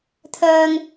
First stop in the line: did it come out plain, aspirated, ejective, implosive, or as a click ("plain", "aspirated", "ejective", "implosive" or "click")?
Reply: aspirated